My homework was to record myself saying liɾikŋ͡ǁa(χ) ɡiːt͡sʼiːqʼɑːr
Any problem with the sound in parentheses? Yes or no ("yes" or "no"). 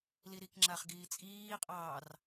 no